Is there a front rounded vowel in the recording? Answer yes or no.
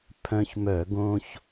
yes